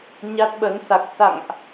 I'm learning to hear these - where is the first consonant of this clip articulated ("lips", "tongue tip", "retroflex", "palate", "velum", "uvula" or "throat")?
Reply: palate